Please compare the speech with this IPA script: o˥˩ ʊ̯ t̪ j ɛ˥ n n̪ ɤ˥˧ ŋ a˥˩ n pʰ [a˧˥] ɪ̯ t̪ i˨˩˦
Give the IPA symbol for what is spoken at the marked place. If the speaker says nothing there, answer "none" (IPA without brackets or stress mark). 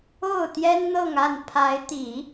a˧˥